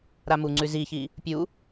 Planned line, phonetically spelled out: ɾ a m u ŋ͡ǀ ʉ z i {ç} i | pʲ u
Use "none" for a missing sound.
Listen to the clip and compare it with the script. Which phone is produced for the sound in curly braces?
ç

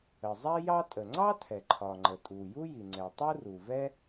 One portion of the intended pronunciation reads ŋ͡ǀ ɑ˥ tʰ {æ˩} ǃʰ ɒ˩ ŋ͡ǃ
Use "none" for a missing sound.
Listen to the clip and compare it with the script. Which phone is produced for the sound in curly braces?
ɛ˩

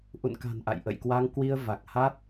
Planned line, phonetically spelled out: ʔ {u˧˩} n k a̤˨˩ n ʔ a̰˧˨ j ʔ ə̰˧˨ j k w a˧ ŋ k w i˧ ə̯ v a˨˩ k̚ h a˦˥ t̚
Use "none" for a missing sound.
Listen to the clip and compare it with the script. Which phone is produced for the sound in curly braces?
ṵ˧˨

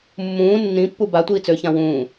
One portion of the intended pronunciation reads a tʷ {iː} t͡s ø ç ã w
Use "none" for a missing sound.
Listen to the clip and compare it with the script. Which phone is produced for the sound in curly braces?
iː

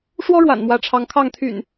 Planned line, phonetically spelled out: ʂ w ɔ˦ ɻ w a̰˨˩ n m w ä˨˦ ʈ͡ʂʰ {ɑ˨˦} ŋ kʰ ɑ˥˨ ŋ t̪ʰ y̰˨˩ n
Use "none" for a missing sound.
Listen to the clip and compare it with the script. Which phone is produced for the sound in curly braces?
ɑ˨˦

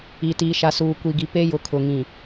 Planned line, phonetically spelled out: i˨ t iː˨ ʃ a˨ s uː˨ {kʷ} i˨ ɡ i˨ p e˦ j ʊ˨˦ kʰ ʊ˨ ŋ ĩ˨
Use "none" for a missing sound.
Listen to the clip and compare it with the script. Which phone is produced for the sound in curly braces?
kʷ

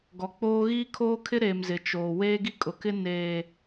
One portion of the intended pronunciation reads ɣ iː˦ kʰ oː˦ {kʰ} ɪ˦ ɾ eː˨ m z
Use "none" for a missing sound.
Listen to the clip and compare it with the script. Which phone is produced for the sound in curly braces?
kʰ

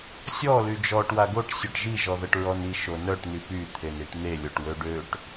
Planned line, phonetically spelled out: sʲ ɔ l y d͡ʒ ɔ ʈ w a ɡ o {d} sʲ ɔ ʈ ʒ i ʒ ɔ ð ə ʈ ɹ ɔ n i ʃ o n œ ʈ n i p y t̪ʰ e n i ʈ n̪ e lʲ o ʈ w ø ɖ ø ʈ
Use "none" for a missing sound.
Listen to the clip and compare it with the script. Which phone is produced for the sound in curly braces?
ʈ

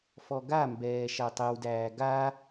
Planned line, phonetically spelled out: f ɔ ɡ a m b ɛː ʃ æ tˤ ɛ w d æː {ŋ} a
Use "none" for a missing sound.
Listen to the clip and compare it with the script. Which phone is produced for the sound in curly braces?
ɡ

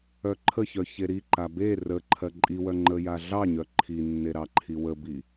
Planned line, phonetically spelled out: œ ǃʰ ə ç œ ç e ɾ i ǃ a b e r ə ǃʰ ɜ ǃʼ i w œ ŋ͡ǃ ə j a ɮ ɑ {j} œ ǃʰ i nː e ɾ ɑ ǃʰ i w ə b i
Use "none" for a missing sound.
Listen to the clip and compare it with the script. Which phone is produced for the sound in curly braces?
ɲ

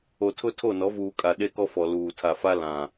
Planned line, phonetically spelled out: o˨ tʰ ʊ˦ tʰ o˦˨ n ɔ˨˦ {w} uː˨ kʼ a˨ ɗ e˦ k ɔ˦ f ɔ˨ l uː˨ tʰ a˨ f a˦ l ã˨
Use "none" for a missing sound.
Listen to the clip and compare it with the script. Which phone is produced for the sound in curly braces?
v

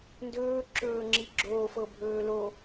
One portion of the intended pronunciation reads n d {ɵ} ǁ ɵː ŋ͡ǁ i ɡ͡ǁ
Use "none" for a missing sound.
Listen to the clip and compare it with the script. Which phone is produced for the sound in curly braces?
ɵː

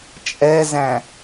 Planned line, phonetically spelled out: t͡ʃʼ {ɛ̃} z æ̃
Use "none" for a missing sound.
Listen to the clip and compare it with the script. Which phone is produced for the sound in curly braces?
ɛ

